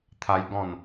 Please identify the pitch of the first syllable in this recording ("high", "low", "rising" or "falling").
high